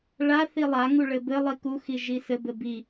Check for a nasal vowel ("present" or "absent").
absent